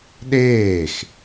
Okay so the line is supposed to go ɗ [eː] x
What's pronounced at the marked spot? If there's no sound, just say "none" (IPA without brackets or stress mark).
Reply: eː